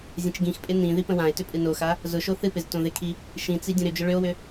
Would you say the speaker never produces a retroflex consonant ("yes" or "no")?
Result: no